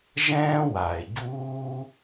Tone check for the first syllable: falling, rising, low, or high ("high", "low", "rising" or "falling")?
high